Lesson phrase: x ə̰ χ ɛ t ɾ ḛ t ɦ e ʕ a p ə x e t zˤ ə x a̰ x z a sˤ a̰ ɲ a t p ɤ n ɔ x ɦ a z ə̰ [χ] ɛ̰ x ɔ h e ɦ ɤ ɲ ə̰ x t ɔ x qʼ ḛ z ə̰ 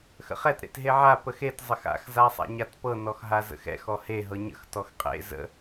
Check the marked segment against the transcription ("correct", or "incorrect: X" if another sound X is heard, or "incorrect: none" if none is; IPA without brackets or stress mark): incorrect: x